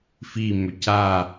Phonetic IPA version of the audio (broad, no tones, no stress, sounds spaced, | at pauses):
f i m ʏ c a